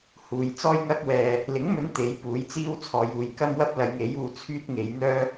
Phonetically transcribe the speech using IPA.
h uː˨ j t͡s ɔː˥ j ŋ ɐ˥ k̚ w ɛː˧ | l ɪ˨˥ ŋ m ɵ˨˧ n t̪ e˨˥ j p uː˨˥ j t͡s iː˥ w t͡sʰ ɔː˨ j uː˨ j k ɐ˥ m w ɐ˥ p̚ l ɐ˨˧ j ŋ e˨˥ j uː˧ t͡sʰ yː˥ t̚ ŋ e˨˧ j n̪ œː˥

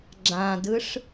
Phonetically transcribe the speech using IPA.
ɡ͡ǁ ã d ɯ ʂ

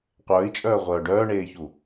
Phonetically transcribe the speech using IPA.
qʷ œː i̯ t͡ʃʼ œː ʁʷ œː ɖ œː ɳ eː ç u

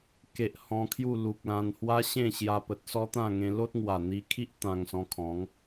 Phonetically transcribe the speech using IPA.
k e˨ ʔ h ɔ̃˧ kʰ j u˥˧ l u˨ k̚ l ã˧ n h w a˦ ɕ ẽ˥˧ ɕ j a˧ p ə˨ t̚ s ɔ˦ t̪ ã˥˧ ŋ ẽ˧ l o˦ t̚ ŋ w a˨˩ n̪ i˧ kʰ i˦ ʔ t̪ ã˧ ŋ s ɔ̃˧ kʰ ɔ̃˨˦ ŋ

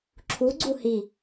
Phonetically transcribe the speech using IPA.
ǁʰ u ɡ͡ǀ u h i

